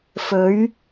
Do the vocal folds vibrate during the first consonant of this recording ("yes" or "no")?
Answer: no